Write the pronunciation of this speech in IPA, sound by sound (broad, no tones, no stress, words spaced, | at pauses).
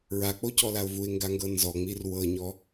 ɹak͡pocɔlaʊ̯ vuɪ̯ŋɡaŋɡɤ nzɔŋ͡mir wɤɲɔ